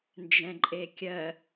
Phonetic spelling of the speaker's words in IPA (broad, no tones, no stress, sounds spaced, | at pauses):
n d͡ʒ ɛ̃ ǃʼ e kʲ ɜ